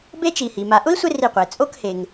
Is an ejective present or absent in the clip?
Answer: present